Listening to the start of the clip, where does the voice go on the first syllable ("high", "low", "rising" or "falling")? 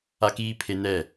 high